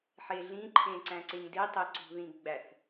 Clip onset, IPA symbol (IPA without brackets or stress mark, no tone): ħ